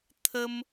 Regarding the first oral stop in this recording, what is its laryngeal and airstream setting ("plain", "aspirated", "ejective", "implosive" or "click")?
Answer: aspirated